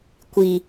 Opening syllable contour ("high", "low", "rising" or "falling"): low